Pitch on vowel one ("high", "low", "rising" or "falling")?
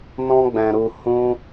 high